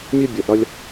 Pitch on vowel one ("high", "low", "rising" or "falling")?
high